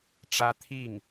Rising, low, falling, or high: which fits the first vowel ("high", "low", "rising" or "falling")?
high